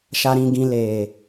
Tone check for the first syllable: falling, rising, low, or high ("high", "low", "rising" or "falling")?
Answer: low